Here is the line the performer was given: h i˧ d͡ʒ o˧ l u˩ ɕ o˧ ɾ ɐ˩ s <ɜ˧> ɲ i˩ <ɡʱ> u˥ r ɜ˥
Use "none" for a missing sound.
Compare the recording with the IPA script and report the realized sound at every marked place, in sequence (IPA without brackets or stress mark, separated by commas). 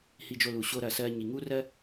ɜ˧, ŋ